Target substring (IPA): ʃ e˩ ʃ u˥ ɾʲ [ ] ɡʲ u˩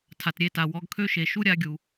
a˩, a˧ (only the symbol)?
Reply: a˧